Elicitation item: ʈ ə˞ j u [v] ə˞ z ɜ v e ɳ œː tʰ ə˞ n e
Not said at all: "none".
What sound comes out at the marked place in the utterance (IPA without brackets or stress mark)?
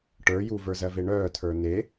v